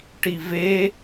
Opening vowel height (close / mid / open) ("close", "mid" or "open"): close